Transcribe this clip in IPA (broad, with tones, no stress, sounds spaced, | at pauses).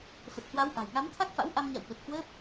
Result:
f ə˨˩ t̚ h w a˨˦ w ʔ a̤˨˩ j ŋ a˨˦ m t̪ʰ a˦˥ k̚ f a̰˧˥ w ʔ a˧ m ɲ a̰˧˨ w ɓ ə˨˩ t̚ h w əː˦˥ p̚